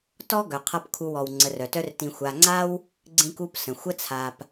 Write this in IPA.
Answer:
tɔ˥ɡœ˨ qʰʌ˦p kʰu˨wɔ˩w ŋ͡ǀə˨rœ˩tœ˦rtĩ˨ xʷa˨ŋ͡ǀa˥w | ɡ͡ǀĩ˦ku˦p sə̃˩xʷə˥t͡sʰa˨p

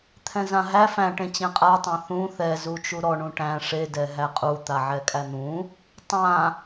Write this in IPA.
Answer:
t̪ʰɛ̃zãɦæ fæ̃ʈẽ t͡ɕẽqʼatˤæ̃ θũ θɛzu t͡ʃuɾɔɳũ ʈæ̃ ʂedɛ ɦæqʼu t̪aʕɛkʼæn̪ũ | tˤã

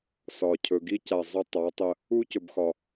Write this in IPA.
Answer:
sɒ˨ cʰɵ˨ɡi˦ca˨ zˤɵ˦˨ tˤa˨˦tˤə˧ | u˦cɵ˨bxɒ˨

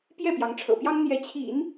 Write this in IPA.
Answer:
pjɛ˥˩pjɑ˧˥ŋʈ͡ʂʰɤ̰˨˩pjɑ˥ŋ n̪jɛ˧˥t͡ɕʰḭ˨˩˦n

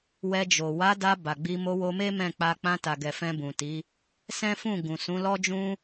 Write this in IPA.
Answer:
wɛ˧d͡ʒo˨ wa˨˦da˧ ba˨ɡ͡bi˧ mo˧wo˧me˦ mɛ̃˦˨k͡pa˧ k͡pã˧ta˨ ɡɛ˨fɛ̃˧bũ˨ti˨˦ | sɛ̃˦fũ˦˨ ɡũ˨ sũ˨˦lɔ˦d͡ʒũ˦

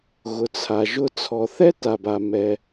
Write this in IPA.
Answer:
ɣʊ˩t͡sʰa˩ʒʊ˧ t͡sʰɔ˩θɛ˥ta˩b a˩mɛ˩

